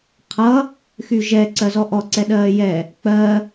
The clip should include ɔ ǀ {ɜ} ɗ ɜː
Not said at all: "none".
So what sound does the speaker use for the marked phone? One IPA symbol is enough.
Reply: ɛ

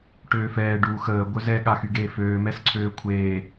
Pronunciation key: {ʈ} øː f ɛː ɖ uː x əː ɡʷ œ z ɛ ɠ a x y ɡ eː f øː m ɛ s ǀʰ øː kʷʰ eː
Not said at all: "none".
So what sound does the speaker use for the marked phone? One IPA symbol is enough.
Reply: ʈ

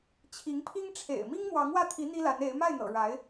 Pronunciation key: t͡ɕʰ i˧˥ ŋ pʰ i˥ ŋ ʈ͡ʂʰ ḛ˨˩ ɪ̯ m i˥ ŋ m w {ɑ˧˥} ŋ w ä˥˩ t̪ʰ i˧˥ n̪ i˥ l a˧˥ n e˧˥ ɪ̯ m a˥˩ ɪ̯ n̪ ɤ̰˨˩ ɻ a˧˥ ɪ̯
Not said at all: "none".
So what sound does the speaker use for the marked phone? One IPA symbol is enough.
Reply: ɑ˧˥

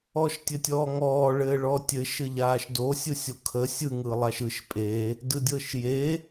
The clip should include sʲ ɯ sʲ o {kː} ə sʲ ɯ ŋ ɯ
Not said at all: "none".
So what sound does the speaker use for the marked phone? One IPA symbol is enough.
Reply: kʰ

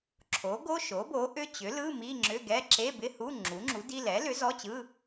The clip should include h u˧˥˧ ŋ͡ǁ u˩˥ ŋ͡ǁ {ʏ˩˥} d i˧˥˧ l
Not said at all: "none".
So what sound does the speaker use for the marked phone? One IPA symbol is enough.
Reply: u˩˥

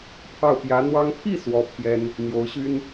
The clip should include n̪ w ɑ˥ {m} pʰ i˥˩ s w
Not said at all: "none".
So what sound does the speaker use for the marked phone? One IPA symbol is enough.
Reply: ŋ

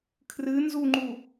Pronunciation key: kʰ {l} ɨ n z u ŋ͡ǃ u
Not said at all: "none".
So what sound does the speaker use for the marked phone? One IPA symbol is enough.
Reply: r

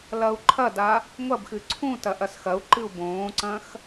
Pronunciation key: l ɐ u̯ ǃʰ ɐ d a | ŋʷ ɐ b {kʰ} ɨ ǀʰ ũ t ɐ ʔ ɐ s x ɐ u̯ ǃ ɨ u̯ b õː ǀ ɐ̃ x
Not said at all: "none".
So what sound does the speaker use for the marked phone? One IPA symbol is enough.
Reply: x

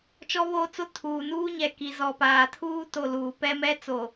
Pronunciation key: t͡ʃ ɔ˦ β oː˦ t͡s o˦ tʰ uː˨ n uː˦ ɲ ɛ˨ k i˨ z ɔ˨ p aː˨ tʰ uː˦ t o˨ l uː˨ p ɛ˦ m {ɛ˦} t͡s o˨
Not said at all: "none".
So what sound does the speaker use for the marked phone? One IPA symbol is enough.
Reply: ɛ˦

